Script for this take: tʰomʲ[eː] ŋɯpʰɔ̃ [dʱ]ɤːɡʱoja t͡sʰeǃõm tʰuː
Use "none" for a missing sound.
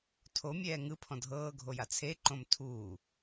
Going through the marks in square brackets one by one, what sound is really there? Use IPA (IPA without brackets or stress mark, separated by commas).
ɛː, dʱ